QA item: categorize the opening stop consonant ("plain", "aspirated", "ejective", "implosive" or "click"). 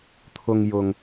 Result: aspirated